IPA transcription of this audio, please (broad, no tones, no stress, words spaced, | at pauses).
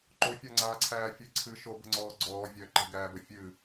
ǃofʲaŋ͡ǀaːǀʰæː fʲɨ ǀʰɨ ʃobə̤ŋ͡ǀɔː ɡ͡ǀɔː vʲœ ǃə̤ɡæːbə fʲɨ